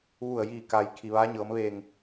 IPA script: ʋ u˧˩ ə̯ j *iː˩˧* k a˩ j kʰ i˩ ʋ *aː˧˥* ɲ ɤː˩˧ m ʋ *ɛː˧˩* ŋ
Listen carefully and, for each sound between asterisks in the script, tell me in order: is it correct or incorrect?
incorrect, correct, incorrect

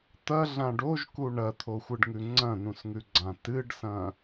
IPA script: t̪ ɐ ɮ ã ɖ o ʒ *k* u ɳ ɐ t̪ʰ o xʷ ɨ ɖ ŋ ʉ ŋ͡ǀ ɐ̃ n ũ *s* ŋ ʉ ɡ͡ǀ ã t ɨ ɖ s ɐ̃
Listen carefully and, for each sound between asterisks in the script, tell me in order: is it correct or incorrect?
correct, correct

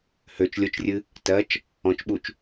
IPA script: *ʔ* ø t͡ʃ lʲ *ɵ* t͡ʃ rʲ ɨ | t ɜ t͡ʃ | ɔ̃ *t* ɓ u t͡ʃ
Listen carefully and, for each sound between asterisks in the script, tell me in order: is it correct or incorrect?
incorrect, incorrect, incorrect

